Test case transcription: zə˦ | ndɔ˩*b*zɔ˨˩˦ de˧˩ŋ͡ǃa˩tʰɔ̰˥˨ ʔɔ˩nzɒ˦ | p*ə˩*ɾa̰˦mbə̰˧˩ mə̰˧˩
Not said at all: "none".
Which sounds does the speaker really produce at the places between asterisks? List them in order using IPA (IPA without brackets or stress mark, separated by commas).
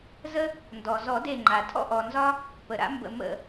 none, ə˩